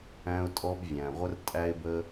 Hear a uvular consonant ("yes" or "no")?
yes